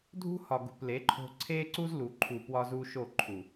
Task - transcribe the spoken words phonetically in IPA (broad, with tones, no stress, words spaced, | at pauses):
dʱṳ˦hɒ˨ɡṳ˨ple˨˦ ǃʰo̤˦ ǀʰe˦ ǀu˦zlu˨ǃʰu˨ pwɒ˦zu˦ʃo˦˨ ǃʰu˨